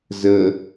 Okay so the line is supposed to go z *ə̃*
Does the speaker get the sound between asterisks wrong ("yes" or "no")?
yes